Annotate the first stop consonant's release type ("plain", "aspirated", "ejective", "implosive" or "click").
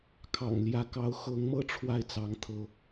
aspirated